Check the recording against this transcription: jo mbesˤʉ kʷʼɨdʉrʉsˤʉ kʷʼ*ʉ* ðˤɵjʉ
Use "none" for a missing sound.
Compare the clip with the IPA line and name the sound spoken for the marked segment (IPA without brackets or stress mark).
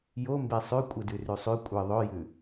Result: ɨ